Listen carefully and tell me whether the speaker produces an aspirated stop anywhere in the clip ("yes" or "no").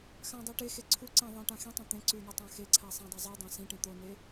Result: yes